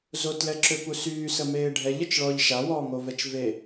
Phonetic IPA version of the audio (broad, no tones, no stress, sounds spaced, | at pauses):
z o t l ɛ ǁ ø p u s yː s ə m eː ɖʱ ɛ ʎ ə t͡ʃ ɭ ɔː ʎ ʃ a w ɔː ŋ o v ɛ t͡ʃ v e